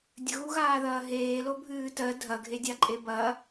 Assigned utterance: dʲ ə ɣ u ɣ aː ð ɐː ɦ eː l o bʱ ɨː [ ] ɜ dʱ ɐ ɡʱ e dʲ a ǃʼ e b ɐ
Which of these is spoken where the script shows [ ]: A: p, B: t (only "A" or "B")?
B